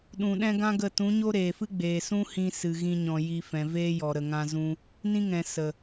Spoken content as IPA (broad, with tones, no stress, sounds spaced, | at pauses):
ɗ ũ˨ ɗ ɛ̃˦ ɡ ã˦ ɡ ə˦˨ t ũ˨˦ ɲ o˦ ɾ eː˨ f ɨ˦ ɡ͡b eː˨ s ũ˦ h ĩ˧ s ɨ˧ ɣ ĩ˦ ɲ ɔ̃˧ j i˧ f ɛ̃˨ v eː˦ j ɔ˨ ɾ ə˨ ŋ ã˧ z ũ˦ | n ĩ˦ ŋ ɛ̃˨ s ə˨